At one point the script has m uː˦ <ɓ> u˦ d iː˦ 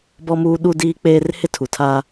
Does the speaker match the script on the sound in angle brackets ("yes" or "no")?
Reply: no